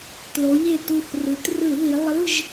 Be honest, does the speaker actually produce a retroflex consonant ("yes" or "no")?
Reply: no